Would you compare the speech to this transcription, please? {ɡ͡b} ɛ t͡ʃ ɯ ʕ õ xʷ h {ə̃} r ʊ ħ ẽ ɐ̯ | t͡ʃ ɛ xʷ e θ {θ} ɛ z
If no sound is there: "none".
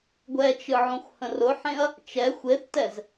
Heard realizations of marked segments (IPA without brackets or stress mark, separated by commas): ɡʷ, ə̃, t